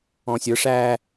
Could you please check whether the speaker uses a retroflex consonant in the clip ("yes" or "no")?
yes